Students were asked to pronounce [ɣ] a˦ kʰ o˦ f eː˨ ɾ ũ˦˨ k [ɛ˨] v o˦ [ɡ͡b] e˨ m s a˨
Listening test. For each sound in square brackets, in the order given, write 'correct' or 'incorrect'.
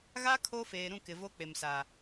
correct, incorrect: ɪ˨, incorrect: k͡p

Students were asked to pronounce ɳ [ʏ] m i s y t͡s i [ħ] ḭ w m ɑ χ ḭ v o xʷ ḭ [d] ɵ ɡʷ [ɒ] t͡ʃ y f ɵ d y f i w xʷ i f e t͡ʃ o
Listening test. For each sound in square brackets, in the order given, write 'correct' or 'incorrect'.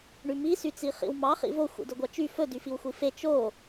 incorrect: y, incorrect: χ, correct, incorrect: ɑ

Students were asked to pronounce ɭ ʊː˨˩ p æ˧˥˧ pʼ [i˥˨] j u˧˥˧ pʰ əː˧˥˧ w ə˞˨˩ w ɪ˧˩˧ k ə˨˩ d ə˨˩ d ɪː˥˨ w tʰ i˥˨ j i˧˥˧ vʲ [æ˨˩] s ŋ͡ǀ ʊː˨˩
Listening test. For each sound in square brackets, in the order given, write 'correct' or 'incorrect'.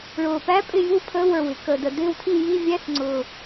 incorrect: ɪ˥˨, incorrect: æ˧˥˧

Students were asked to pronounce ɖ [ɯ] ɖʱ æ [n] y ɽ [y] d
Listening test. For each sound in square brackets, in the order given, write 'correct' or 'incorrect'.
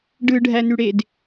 correct, correct, incorrect: e

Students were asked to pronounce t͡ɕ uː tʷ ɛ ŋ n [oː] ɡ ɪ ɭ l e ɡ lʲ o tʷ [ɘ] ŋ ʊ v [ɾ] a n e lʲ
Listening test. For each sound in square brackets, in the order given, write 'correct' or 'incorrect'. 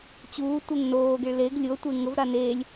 correct, incorrect: e, correct

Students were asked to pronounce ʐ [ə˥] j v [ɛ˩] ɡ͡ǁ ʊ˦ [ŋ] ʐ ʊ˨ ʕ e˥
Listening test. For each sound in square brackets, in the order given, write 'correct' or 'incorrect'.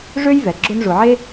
incorrect: ø˥, correct, incorrect: n

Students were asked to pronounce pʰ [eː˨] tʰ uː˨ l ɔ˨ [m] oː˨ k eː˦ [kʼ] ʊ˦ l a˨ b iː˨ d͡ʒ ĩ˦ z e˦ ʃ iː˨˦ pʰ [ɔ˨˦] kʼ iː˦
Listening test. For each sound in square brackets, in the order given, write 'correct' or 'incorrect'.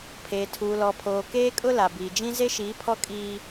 correct, incorrect: pʰ, correct, incorrect: ɔ˦

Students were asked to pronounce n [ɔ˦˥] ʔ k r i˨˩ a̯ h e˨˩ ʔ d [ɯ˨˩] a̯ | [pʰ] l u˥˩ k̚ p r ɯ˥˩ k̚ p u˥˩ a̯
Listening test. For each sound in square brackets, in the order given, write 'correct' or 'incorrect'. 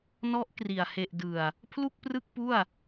correct, correct, correct

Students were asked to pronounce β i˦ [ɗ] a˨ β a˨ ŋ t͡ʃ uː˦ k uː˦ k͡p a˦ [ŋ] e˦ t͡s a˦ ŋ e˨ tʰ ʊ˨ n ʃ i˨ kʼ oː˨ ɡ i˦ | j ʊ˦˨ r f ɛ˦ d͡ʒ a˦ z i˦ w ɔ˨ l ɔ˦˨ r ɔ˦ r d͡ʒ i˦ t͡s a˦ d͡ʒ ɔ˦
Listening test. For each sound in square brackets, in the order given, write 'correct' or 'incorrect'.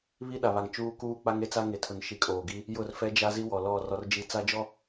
correct, correct

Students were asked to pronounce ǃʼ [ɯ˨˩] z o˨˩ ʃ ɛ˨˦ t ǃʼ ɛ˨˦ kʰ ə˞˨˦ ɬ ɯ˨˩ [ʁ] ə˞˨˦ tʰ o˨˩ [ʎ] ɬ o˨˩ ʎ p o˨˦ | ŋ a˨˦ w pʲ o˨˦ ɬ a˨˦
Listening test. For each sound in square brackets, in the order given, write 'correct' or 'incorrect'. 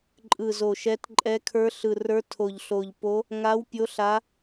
correct, incorrect: r, correct

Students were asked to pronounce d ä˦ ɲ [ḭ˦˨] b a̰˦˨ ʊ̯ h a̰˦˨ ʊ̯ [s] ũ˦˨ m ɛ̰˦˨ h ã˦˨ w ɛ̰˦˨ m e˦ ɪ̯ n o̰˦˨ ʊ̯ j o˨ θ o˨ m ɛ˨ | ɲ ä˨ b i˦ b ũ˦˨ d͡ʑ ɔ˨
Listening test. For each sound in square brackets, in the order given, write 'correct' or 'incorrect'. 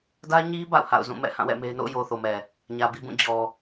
incorrect: i˦, incorrect: z

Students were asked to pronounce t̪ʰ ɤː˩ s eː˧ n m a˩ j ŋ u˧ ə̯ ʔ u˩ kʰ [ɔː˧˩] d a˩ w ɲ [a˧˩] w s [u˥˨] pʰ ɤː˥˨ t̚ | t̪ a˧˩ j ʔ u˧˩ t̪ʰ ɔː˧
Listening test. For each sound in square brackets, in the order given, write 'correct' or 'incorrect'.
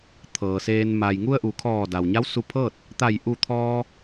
correct, incorrect: a˧˥, incorrect: u˧

